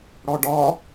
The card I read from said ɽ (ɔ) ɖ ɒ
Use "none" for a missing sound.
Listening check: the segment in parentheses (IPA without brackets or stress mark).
ɔ